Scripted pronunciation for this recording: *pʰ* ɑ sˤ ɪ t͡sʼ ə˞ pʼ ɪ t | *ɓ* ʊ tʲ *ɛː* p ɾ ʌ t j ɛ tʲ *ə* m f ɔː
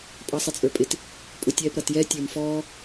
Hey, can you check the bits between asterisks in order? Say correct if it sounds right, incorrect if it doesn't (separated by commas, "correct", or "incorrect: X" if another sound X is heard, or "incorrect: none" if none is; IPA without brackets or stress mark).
incorrect: pʼ, incorrect: pʼ, correct, incorrect: ə˞